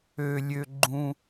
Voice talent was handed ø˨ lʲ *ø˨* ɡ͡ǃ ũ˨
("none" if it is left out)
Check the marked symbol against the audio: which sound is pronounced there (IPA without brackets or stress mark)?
ø˨